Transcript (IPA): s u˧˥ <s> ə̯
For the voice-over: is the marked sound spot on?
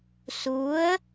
no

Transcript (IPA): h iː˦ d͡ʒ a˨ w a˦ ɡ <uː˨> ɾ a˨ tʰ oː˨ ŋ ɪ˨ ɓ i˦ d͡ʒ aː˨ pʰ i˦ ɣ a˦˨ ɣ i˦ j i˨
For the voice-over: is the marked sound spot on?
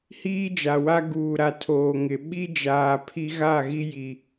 yes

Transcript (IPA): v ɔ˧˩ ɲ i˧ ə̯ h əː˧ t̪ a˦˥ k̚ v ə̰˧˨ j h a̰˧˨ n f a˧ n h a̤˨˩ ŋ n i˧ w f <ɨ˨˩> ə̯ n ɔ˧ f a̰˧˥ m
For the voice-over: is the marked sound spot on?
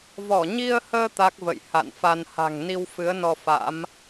no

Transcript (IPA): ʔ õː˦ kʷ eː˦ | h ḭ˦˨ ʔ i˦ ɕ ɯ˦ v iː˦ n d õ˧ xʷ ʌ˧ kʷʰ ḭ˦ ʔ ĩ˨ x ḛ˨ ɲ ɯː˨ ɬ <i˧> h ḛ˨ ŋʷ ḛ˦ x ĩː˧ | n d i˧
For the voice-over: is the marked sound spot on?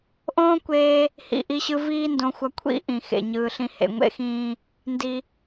no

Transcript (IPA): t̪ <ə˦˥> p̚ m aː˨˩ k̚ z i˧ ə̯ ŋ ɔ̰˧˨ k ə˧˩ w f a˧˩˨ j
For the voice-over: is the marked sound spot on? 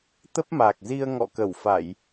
yes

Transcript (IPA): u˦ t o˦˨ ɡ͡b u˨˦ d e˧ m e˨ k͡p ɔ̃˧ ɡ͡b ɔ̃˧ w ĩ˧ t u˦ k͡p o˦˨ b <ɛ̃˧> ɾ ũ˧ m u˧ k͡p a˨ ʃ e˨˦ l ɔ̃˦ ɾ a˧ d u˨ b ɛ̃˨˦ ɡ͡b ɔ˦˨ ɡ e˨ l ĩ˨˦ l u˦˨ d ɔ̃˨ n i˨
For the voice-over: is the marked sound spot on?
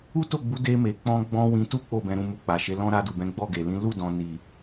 yes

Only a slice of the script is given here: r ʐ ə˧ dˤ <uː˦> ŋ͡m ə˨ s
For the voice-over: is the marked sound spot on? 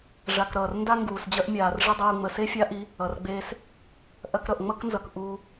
no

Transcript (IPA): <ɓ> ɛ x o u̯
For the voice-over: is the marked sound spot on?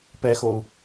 no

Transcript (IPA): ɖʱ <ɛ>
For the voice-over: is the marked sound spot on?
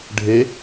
no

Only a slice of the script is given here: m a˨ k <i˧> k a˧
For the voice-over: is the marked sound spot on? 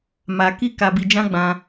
yes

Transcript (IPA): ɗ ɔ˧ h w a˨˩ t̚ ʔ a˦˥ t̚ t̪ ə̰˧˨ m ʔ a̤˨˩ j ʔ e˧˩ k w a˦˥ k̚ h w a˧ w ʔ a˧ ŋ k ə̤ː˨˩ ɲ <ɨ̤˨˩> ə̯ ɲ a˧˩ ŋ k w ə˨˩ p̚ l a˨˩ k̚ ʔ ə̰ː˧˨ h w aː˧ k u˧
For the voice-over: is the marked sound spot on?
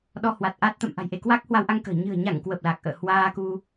yes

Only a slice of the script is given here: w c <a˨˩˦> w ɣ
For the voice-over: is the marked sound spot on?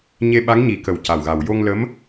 no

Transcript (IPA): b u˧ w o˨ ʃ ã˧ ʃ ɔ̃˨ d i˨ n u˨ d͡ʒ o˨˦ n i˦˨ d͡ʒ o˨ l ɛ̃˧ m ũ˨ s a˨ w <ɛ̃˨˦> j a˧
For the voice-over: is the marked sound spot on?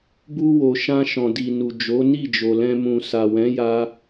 yes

